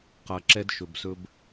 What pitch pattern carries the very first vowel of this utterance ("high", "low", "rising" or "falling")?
low